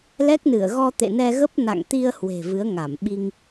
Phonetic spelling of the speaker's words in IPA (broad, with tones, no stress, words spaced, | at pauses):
lɛ˦˥k̚nɨ˧˩ə̯ ɣɔ˧t̪ḛ˧˨nɛ˧ɣə˦˥p̚ na̰˧˨ŋt̪i˧ə̯ hwe̤˨˩vɨ˨˦ə̯ŋa˧˩m ɓi˧ŋ